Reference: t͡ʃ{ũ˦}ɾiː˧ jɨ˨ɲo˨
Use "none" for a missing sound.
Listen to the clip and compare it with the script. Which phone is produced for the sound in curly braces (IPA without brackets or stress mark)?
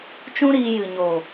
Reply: ũ˦